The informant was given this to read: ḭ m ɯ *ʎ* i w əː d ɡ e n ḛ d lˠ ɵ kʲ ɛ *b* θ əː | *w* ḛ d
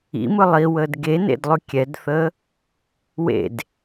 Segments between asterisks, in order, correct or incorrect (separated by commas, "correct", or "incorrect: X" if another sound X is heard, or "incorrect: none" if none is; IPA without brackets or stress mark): incorrect: lˠ, incorrect: d, correct